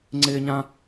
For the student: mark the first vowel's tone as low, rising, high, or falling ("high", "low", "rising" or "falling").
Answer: high